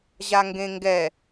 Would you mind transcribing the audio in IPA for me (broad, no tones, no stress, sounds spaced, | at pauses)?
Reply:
ʑ a ŋ ɡ ẽ ŋ ɡ ɛ